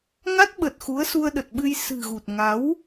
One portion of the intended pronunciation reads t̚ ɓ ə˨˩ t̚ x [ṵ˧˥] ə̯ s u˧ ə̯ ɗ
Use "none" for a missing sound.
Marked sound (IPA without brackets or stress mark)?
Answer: u˨˦